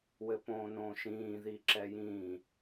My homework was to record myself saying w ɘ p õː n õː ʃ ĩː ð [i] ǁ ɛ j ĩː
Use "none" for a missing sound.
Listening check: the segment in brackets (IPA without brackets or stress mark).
i